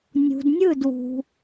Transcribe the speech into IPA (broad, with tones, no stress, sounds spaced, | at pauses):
nʲ ṳ˨ d nʲ ɯ˦˨ d w ṳ˨